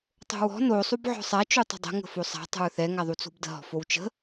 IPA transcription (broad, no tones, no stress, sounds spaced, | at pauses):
tˤ o̤ w ɔ̤ n o sˤ u b ʕ ɔ̤ sˤ a t͡ʃ u tˤ ə̤ dˤ ə̤ ŋ ə̤ f o sˤ a̤ tˤ ə̤ ɹ θ ɛ ŋ a ðˤ u t͡s o̤ b d ə̤ ɦ ɔ̤ f o w t͡ʃ ə̤